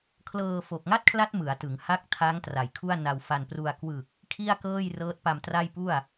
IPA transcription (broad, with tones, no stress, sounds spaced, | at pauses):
kʰ l ɤː˧ f o˨˩ k̚ ŋ a˥˩ t̚ kʰ l a˦˥ t̚ m ɯ˩˦ a̯ t ɯ˩˦ ŋ h a˦˥ k̚ tʰ a˦˥ ŋ t r a˩˦ j kʰ u˥˩ a̯ n a˧ w f a˧ n p r u˧ a̯ k w ɯ˨˩ k̚ | kʰ i˥˩ a̯ k ɤː˥˩ j r ɤː˦˥ t̚ p a˧ m t r a˥˩ j p u˥˩ a̯